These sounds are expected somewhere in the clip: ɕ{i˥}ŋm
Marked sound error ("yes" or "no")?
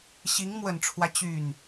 yes